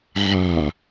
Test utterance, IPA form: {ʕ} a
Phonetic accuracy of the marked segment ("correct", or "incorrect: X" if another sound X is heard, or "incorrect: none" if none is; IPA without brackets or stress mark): correct